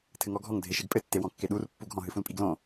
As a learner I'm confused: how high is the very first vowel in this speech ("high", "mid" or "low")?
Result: mid